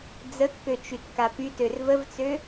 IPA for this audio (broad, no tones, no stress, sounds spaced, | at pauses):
d͡z ə kː ø t͡ʃ y t k a p y t ø r v ə v t͡s ø